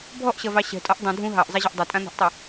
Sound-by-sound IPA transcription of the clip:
bʱɔʔɕɐvɑ ɕɛ̤tʼɔʔ dˤũ dʱũ ɦɑʔzˤɛʑʌʔ dˤɐtʼãn̪a̤ʔtˤu

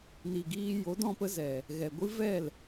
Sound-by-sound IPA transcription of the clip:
ni˨ɡiː˧ jo˨˦dɔ̃˧pə˧ zɛ˨ | ɣɛ˨ ɡʷɨ˦vɛ˦˨l

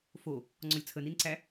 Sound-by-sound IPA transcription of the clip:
fo | ŋ͡ǀɔlʲt͡sʰəninǀæ

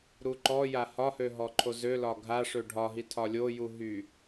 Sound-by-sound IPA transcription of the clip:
ɾuǃɔja hɒhø ɦɔǃʰozølɒ ɡʱa ʂøɖʱɒɦi tʰɒlʲoju ɦy

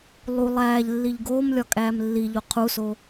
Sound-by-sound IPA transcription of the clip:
lˠu lˠæːʎlːiʎ ɡoːmlʲɒkʼæːm lːiʎo qʰuso

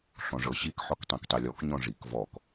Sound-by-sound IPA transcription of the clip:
ɬɔ̃ʐɤɕik ħɔktˤɛ̃ktˤilʲɔk ɲɔ̃ʐik vɔk

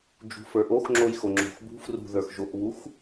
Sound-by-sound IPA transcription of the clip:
d͡ʒṳfə˞ʔoxŋ͡ǁoj xoŋ͡ǁo̤xbṳ frṳðə˞xʒoʔβux

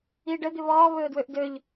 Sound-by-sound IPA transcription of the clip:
iːɖə d̪ɪβɔː βɵːdwøʔdøʎ

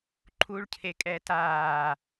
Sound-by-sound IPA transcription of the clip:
ǃʰuɭcʰekʼɛːt aː

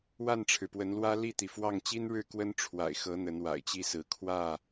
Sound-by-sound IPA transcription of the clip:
wa˥˨nʈ͡ʂʰɻ̩˩pwə˨˦nlwä˦ li˥˨t̪i˩fwɑ˥˨ŋ t͡ɕi˦nɻɻ̩˥˨ kwə˦nʈ͡ʂʰwa̰˨˩ɪ̯xɤ˨˦ n̪ə˨˦nwa̰˨˩ɪ̯t͡ɕi˥˨sɹ̩˨˦ kʰwä˥˨

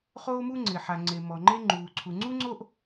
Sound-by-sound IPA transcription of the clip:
χoː˥mu˥ŋ͡ǀɪː˩ ħa˩ ŋ͡ǀe˩ mɔ˩ŋ͡ǃe˥ŋ͡ǃuː˩ ǀʰu˩ŋ͡ǀu˥ŋ͡ǀo˥ʔ

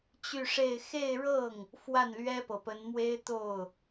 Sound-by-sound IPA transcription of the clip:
t͡ɕy˥˧ʂe˥˧ɪ̯ xe˥˧ɪ̯ɻɤ˥˩ŋ | fwa˥˩nlɥɛ˥pɤ˨˩pə˧˥n mwe˥ɪ̯t̪o˥˩ʊ̯

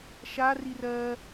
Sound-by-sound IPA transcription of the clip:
ʃa rirɜ

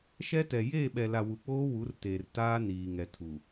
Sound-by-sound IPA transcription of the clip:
ʃɛ˦tɛ˨ jeː˦˨ɓɛ˨la˨ wu˨k͡poː˦ wu˨˦rteː˨rtaː˦ niː˨ŋɛ˨tʰu˨

